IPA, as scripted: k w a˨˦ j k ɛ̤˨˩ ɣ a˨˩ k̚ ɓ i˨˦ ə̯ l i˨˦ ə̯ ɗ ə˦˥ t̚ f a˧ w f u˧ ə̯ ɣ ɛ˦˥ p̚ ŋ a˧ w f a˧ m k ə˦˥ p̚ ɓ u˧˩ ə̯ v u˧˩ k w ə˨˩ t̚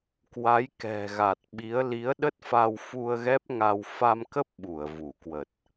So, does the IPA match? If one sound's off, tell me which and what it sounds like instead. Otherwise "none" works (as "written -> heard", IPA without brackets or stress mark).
k̚ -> t̚